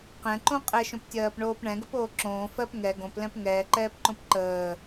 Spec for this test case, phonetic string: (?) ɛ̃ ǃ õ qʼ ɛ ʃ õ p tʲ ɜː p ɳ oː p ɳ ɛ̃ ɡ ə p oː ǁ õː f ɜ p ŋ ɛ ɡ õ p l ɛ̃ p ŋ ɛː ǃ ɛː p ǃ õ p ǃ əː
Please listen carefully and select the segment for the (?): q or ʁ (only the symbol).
q